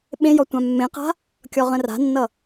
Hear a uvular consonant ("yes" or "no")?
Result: yes